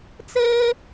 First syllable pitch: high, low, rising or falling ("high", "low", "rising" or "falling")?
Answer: high